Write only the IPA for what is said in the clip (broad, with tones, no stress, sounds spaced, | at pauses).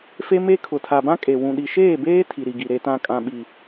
f e˦ m e˦ kʰ ʊ˨ tʰ a˨ b ã˦ kʼ e˨ w ũ˨ ɗ i˨ ʃ eː˦˨ b eː˦ tʰ i˨ ɾ i˨ ɡ i˨ ɾ e˨ t ã˨ kʼ ã˨ ɓ i˨